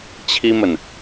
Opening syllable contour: high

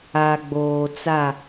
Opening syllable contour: low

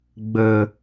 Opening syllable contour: low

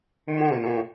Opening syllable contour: falling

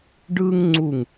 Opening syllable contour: high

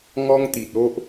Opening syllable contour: high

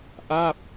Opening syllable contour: falling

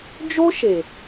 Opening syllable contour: high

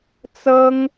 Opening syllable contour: high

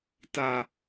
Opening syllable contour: low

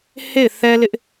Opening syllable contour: falling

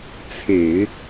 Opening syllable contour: low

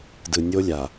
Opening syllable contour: low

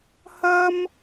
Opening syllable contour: high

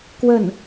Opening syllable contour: falling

